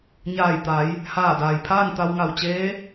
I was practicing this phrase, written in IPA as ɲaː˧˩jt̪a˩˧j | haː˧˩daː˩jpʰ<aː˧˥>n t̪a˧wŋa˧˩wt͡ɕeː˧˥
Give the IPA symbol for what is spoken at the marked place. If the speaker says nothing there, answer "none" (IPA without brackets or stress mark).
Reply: aː˥˨